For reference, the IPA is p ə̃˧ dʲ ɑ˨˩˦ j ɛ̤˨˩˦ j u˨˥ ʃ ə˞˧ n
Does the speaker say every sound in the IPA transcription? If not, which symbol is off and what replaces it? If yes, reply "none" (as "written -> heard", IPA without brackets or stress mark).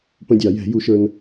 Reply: none